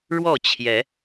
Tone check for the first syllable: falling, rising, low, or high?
falling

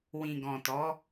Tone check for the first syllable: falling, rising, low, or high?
low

